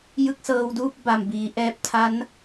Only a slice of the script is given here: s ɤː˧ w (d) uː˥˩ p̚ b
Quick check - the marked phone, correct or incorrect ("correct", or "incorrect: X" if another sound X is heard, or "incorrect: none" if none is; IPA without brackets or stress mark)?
correct